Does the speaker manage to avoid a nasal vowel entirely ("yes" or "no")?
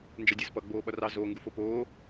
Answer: yes